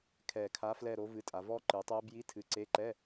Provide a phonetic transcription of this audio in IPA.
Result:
kʰ ɛ˨˩ kʰ a˨˥ f l ɛ˦˨ ɾ o˨˥ v ɨ˨˥ tʼ a˩˧ v ɔ˦˥ ǃ ɨ˩˧ tˤ ɛ˦˥ b j i˧˥˧ tʰ ɨ˨˥ ǀ e˧˥˧ ǃ ɛ˧˥˧

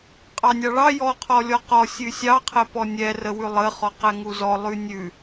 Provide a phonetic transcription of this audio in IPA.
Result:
qʼ ɑ nʲ ɑ ɭ ɑ j ɔ qʰ ɔ lʲ ɔ q ɔ sʲ ʉ sʲ ɑ qʰ ɛ p ɔ nʲ ɛ r ə w ʉ lˠ ə χ ɔ q ɛ ŋ u z ɔ lˠ ʉ nʲ ʉ

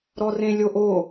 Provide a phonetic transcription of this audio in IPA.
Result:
ɾ ɔ r ẽ lʲ o ʔ o

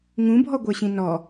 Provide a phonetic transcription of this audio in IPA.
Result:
ŋ ũ bʱ ɔ ɡʷ ə˞ ɕ ĩ n ɔ

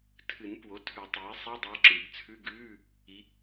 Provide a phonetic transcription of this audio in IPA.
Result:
tʰ ɨ˨˩˦ n p w o˩˥ tʰ ʉ˨˩˦ tˤ iː˩˥ sˤ ɛ˧˥˧ dˤ o˧˥ ǁ ɨ˨˩˦ ɡ t͡sʰ ʉ˧˥˧ ɡ ʉː˧˥˧ | i˧˥

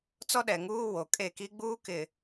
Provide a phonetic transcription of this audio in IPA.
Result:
t͡s ɔ˦ ɗ ɛ˨ ŋ uː˦ w o˨ kʼ e˦˨ k i˦ ɡ͡b uː˦ k ɪ˨

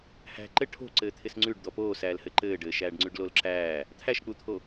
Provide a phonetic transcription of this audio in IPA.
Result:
h æ̤ ǃ ɘ ʈʰ o̤ ǀ ɘː t̪ʰ ɪ s ŋ͡ǀ ʉ ɖ d̪ ɔ p oː s æː l h ɘ ǃ ɘː ɖ ɘː ʃ æː ɖ ŋ͡ǀ ʉ ɖ l o l ǁ æː | t̪ʰ æ ʃ k͡p u t̪ʰ o

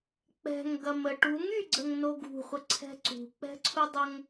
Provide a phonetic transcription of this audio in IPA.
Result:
k͡p ɛ̤ ŋ ɡ ɐ m ə ʈ u ŋ y ɡ͡ǀ ə ŋ n o ɡ ṳ χʷ ə ǀʰ ɛ̤ ǀ ṳ k͡p ɛ̤ ǀʰ u dˤ ə ŋ

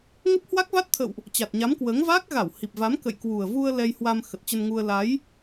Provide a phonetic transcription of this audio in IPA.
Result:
ŋ ə˦˥ p̚ h w a˦˥ k̚ v a˦˥ t̚ t̪ʰ ə̰˧˨ w ʔ | t͡ɕ a˨˩ t̚ ɲ a˨˦ m k w əː˨˦ ŋ v a˦˥ k̚ ɣ a˧˩ w h i˨˩ p̚ v a˨˦ m k ə̰˧˨ j k w u˨˩ ə̯ v u˧ ə̯ l ɛ˧ j h w a˧ m x ə˨˩ t̚ t͡ɕ ə˧ n ŋ u˧ ə̯ l a˨˦ j

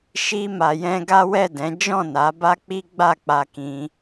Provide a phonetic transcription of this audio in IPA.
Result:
ʃ i˧ m a˨ j ɛ̃˧ ɡ a˦ w ɛ˦˨ d ɛ̃˨˦ d͡ʒ ɔ̃˦˨ n a˨˦ b a˦ k͡p i˦ ɡ͡b a˦˨ k͡p a˧ k ĩ˧

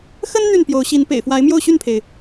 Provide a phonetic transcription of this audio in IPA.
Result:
x ə˦ n n̪ y˥˨ n p j o˨˦ ʊ̯ ɕ i˨˦ n p ḛ˨˩ ɪ̯ f w a˨˦ ɪ̯ m j o˥˨ ʊ̯ ɕ y˥˨ n pʰ e˩ ɪ̯

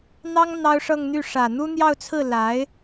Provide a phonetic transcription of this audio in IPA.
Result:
n̪ ɑ˥ ŋ n̪ ɑ˥ ʊ̯ ʂ ɤ˥˧ ŋ n̪ y˥˩ ʂ ä˨˩ n̪ u˥ n̪ j ɑ˥˧ ʊ̯ t͡sʰ ɹ̩˥˩ l a˧˥ ɪ̯

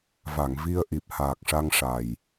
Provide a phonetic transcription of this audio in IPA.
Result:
v a˨˩˨ ŋ v i˧ ə̯ ʔ i˨˩ p̚ h aː˨˩ k̚ ʂ a˧ ŋ ʂ a˨˩ j

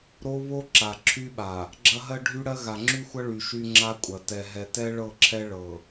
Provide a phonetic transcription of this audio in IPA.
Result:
ɾ o˦ β o˦ ǁ a˨ ǁʰ y˦ ɓ a˨ | ɡ͡ǁ ɐ˦ ɦ ɜ˦ ɖʱ y˦ ɽ ɜ˦ ɣ a˨ ŋ͡ǁ y˦ xʷ ɐ˦ ɭ y˨ ʃ y˦ ŋ͡ǁ a˦ kʷʼ ɐ˨ t ɛ˨ ɦ ɛ˨ t ɛ˦ ɭ ɤ˦˨ ǁʰ ɛ˦ ɭ ɤ˨

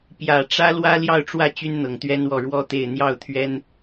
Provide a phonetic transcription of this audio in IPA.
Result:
p j ä˨˩ ʈ͡ʂ ä˥ l w ä˥ l j ɑ˥˧ ʊ̯ ʈ͡ʂ w ä˥˩ t͡ɕ y˥ n n̪ ɤ˨˩ ŋ t̪ ɥ ɛ˥ n w ɔ˥˩ ɻ w ɔ˥ t̪ e˥˧ ɪ̯ n̪ j ɑ˥˩ ʊ̯ t̪ʰ ɥ ɛ˥ n

